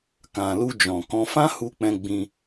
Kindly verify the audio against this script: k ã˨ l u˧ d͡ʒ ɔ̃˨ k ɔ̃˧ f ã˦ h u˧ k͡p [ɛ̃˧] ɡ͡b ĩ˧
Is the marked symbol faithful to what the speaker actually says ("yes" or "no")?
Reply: yes